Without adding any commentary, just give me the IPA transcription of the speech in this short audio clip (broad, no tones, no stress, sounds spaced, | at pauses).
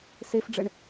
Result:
s e f ɖ͡ʐ ɘ ɳ